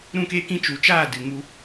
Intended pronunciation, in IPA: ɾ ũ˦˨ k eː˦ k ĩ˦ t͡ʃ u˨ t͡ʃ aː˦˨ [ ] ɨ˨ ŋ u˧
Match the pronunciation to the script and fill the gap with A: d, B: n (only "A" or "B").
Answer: A